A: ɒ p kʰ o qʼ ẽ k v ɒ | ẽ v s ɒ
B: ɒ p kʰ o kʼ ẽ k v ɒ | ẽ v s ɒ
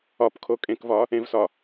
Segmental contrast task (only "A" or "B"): B